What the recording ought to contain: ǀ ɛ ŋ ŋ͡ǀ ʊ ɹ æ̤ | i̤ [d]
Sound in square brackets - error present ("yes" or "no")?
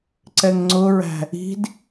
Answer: no